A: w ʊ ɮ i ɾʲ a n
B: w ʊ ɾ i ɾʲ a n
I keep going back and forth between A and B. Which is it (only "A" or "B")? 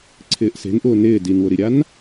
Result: B